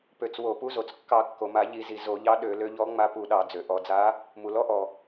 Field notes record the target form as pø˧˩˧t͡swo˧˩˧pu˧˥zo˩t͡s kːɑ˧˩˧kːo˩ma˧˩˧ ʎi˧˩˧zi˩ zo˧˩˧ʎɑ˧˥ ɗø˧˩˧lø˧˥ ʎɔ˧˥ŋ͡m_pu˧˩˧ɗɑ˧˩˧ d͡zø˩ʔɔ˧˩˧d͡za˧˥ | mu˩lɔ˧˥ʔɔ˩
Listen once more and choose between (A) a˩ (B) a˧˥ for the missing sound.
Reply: B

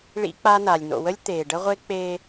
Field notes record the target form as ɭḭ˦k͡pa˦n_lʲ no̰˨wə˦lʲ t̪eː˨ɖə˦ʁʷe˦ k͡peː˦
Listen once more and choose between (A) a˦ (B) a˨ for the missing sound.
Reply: B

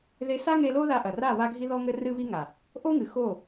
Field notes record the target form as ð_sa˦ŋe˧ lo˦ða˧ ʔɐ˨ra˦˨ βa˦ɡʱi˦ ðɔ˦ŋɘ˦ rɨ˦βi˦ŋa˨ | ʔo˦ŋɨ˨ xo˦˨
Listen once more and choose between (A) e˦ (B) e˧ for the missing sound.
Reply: B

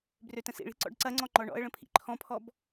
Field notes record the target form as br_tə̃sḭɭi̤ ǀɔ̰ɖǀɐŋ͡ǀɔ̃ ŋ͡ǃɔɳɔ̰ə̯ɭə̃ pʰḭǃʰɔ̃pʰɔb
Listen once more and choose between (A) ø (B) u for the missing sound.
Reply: A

